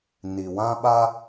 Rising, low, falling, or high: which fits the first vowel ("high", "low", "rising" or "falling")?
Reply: low